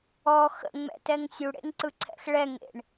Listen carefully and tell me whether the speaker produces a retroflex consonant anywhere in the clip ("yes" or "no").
yes